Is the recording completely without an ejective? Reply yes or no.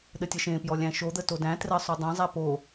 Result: yes